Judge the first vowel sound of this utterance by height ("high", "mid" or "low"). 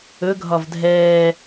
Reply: mid